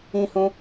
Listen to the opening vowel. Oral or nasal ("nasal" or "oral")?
nasal